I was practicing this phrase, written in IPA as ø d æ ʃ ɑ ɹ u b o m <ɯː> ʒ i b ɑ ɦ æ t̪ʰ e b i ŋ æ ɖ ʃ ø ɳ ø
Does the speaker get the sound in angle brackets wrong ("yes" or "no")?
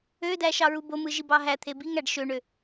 yes